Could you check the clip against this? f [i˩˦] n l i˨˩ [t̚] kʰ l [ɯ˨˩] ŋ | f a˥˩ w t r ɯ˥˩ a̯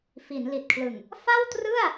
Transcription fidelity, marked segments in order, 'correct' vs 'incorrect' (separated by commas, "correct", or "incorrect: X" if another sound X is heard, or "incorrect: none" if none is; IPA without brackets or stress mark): correct, correct, correct